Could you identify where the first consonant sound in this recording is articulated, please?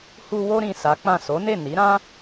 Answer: glottal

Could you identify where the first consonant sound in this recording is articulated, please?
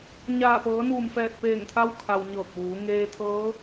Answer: palatal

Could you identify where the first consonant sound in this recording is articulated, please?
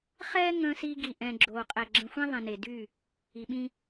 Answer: uvular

